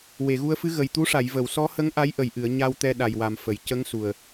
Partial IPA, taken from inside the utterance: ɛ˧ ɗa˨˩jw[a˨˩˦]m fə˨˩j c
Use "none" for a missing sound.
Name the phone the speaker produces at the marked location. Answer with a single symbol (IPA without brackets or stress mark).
a˨˩